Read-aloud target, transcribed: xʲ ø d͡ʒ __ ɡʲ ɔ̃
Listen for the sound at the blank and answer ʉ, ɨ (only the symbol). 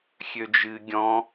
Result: ɨ